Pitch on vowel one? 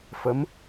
rising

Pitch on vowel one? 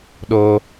high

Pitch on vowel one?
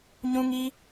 high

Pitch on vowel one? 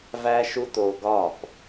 high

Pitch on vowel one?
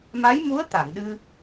rising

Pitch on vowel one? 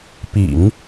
low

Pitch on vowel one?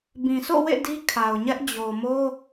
low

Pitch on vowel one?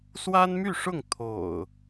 high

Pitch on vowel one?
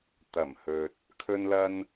low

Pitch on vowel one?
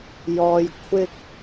low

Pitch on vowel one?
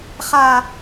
high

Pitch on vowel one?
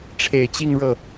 low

